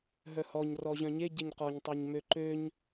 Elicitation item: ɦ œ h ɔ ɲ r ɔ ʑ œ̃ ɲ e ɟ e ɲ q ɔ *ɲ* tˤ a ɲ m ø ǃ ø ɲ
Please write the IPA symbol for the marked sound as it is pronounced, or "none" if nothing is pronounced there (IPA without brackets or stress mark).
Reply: ɲ